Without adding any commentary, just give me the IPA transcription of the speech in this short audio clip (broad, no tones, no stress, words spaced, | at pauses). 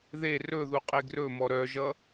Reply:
ðe rɵ ðuqʼeɡrɵmɔ ɾœʒʌ